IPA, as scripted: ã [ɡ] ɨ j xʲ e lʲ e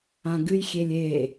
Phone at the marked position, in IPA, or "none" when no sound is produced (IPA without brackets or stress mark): ɡ